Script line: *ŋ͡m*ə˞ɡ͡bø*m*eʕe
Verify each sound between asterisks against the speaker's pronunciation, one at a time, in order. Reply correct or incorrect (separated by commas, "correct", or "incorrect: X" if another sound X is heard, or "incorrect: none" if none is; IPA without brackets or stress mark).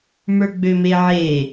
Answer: incorrect: m, correct